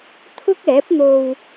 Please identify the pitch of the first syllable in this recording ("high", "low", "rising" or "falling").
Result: high